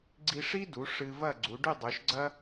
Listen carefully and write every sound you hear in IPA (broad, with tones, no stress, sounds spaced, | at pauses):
ɡ͡ǀ i˧ ʂ i˥ d u˩˧ ʂ ɨ˧ v ɐ˥˧ ɡ͡ǀ u˩˧ ɖ ʉ˥˧ dˤ ʉ˩˧ ʃ ɡ͡ǀ ɐ˥